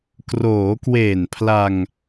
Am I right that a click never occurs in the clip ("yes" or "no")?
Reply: yes